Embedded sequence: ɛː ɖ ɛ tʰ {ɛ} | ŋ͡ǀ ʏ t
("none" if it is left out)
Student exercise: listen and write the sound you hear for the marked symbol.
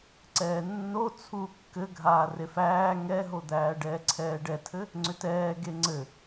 ɘ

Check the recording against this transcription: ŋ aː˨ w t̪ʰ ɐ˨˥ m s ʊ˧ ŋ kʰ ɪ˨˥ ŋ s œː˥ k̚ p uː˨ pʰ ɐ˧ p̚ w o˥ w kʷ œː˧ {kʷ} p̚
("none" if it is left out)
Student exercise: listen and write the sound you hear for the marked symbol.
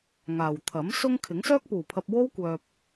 none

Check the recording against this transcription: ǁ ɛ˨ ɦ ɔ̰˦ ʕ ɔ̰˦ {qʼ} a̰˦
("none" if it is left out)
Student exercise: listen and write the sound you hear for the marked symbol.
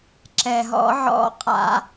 qʼ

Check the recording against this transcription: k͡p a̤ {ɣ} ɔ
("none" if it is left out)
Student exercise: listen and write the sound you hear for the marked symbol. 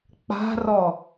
r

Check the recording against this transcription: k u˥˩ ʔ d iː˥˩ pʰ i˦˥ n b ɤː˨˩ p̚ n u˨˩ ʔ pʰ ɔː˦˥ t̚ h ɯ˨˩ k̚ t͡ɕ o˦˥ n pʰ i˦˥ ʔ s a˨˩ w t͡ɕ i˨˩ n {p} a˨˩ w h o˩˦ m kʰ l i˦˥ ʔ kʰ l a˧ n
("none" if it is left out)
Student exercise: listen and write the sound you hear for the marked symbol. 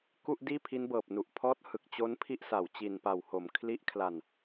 p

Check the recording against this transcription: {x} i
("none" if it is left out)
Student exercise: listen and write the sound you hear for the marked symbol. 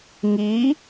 ŋ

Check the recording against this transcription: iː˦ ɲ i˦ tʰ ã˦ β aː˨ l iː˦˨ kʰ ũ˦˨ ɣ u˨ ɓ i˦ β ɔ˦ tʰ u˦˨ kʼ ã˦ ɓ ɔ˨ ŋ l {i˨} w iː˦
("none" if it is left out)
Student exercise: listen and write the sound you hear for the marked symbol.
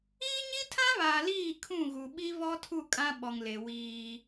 e˨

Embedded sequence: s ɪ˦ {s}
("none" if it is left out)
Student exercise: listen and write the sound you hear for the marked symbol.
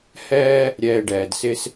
s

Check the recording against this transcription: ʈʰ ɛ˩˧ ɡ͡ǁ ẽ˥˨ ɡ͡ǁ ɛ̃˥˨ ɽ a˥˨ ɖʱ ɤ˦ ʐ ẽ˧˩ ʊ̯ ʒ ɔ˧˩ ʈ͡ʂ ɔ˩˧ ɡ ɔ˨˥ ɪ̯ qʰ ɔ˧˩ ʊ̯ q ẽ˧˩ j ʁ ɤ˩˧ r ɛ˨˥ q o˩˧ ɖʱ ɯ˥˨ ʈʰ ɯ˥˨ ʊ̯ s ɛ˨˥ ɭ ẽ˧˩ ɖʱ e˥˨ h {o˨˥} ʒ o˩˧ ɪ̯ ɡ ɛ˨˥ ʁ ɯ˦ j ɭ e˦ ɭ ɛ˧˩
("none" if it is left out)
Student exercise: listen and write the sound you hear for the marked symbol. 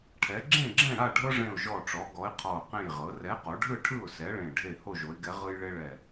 o˥˨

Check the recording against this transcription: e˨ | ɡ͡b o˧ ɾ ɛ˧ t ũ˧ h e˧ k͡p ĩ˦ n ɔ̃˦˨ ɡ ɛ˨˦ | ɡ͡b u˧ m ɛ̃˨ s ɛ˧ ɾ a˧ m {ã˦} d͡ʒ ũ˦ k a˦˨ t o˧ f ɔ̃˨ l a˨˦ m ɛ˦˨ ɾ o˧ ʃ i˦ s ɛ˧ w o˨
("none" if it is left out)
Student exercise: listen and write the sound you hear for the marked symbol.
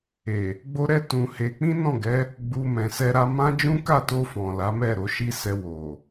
ã˦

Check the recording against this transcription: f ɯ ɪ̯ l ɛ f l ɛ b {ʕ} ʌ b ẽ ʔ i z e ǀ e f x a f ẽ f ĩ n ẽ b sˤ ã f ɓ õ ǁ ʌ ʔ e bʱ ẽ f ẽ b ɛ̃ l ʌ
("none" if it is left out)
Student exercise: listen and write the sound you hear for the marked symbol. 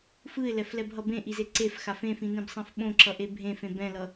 ɦ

